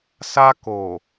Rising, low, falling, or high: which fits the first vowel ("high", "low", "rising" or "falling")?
high